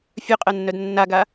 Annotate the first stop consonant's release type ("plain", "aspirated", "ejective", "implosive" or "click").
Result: ejective